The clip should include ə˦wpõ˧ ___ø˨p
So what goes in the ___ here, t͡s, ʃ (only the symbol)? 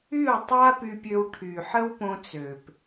t͡s